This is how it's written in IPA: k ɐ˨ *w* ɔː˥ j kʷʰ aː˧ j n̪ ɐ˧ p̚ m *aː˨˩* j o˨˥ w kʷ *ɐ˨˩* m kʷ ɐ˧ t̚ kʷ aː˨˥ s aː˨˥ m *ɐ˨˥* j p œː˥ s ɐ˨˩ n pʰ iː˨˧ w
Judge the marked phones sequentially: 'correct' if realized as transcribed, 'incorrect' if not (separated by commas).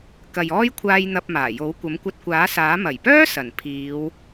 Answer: incorrect, correct, incorrect, incorrect